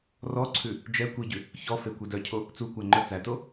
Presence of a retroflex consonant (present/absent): absent